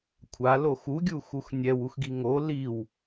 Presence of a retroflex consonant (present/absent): absent